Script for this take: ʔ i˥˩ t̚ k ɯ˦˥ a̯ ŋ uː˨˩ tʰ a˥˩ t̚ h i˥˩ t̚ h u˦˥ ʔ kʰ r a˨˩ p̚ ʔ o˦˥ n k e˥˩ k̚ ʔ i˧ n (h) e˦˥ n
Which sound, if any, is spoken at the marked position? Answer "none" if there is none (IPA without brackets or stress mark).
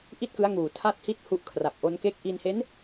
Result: h